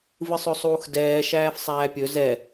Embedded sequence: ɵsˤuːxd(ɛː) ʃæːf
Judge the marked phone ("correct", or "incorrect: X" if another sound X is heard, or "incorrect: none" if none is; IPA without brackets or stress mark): correct